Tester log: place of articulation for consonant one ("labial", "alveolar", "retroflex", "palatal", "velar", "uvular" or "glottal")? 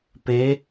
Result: labial